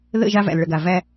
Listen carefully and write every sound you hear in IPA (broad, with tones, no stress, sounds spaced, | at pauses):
ð ə̰˦˨ ʒ a˦ v æ̰˨ l ɭ ə˨ ɡ a˨ v æ˦